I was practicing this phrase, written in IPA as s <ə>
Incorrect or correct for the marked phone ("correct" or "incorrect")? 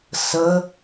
correct